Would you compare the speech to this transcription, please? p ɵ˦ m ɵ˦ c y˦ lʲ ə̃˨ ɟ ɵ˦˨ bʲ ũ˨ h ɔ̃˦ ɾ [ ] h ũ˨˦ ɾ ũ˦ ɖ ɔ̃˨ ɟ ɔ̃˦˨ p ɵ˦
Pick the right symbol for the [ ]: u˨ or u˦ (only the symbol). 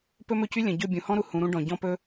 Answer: u˨